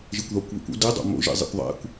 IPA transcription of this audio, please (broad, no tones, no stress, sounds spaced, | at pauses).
ʒ i kʷ ð ɒ kʷ β ḭ kʷ o̰ d i dˤ o̰ m o̰ ʒ ḭ zˤ ḛ kʷ ðˤ æ̰ kʷ